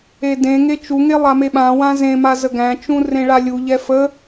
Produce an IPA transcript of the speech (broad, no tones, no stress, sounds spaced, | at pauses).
e d ẽ ŋ e t͡ʃ u ŋ e lˠ a m e ɓ ã w ã z ẽ m a z ə ɡ æ̃ t͡ʃ ũ r ẽ ɭ a lʲ u ʎ ɛ f ə